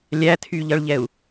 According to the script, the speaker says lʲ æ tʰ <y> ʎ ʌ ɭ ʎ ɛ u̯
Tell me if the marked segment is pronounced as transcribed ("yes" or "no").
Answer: yes